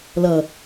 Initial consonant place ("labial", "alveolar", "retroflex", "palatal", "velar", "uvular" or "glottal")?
alveolar